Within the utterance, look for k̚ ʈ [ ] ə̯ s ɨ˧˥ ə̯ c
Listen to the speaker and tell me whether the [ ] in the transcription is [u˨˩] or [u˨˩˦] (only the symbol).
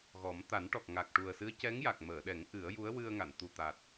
u˨˩